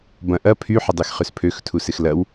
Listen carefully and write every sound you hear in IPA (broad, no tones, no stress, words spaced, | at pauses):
bɐ̃ ʔɐ pʰy ħɪdˤexχøspʰøx tʰusɪxlɐw